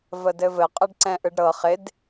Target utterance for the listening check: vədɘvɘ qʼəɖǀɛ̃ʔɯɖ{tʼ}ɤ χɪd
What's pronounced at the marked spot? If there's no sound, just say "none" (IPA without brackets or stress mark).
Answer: ɾ